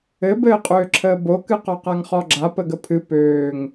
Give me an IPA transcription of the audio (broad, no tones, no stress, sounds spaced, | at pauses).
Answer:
ɘ b ɘː qʼ øː ǁʰ əː b o k ɨ q ɔ q a ŋ χ ɔ ɡ͡ǁ a p ə ɡ ə pʰ ɨ p øː ŋ